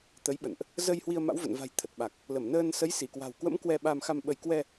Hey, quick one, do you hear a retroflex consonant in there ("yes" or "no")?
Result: no